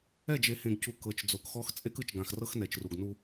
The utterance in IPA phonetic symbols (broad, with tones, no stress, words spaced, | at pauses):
ɛ˦˨d͡ʒe˨hẽ˨ɡcu˨ kɤ˨t͡ʃ d͡zo˨kxɔ˦x t͡sʼe˦kɯ˨t͡ʃɡã˨xrɤ˦x nɛ˨t͡ʃru˨ɡ nu˦